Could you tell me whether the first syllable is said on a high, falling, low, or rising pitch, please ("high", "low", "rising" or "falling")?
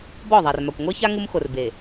falling